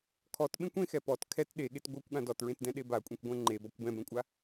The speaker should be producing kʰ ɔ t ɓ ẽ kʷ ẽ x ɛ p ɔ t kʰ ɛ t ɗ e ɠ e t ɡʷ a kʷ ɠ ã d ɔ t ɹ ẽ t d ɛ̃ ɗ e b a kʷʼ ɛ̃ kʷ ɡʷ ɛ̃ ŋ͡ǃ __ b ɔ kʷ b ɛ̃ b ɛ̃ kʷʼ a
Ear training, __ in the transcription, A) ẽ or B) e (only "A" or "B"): B